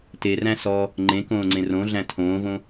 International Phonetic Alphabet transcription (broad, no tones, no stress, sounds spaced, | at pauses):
t e r æ̃ s ɔ | ŋ͡ǃ ẽ k õː ŋ͡ǀ ẽ r õ ɮ æ̃ tʰ õː v õ